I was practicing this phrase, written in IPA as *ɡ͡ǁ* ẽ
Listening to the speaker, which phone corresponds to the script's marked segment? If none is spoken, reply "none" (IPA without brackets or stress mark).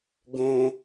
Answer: ɡ